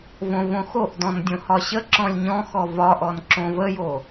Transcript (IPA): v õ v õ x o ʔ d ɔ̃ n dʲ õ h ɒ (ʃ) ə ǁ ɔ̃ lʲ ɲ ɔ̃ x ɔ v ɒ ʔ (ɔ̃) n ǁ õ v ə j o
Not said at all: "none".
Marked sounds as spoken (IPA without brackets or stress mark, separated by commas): ɕ, ɔ